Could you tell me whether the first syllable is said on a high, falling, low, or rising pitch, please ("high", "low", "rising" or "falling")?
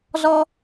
high